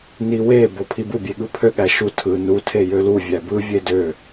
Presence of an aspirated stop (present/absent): present